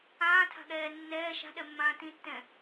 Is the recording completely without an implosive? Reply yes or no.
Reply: no